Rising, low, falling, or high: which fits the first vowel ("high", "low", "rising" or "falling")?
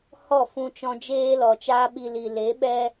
falling